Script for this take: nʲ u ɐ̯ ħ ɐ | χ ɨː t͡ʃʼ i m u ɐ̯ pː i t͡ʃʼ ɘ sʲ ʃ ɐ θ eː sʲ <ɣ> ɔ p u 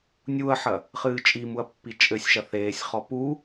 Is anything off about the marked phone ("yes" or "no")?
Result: yes